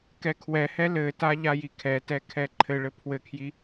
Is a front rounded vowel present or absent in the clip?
absent